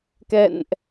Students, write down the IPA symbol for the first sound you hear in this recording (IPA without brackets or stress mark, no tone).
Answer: k